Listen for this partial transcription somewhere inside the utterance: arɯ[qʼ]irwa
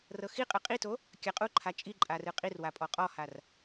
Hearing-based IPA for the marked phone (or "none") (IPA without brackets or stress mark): qʼ